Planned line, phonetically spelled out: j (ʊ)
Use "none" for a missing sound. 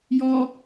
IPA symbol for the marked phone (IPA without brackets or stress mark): ɔ